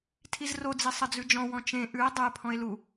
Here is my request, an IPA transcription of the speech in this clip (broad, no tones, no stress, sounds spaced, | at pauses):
tʰ i z r o d͡z i sˤ ɘ d͡z ʉ d͡ʒ ɔ̃ w ɔ̃ t͡ʃ ẽ ʔ ʉ e̯ dˤ ɘ e̯ pʰ ɔ̃ e̯ l u